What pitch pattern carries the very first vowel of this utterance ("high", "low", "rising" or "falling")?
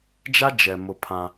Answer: high